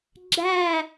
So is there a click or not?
yes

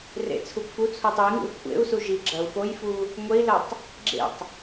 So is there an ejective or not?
no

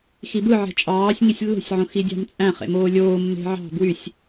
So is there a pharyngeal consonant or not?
yes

